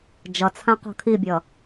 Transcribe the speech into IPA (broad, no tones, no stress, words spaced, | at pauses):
d͡ʒʌt͡sʰã qɔ̤kʰibʲʌ